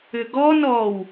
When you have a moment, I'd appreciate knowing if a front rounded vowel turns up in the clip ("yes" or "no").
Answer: yes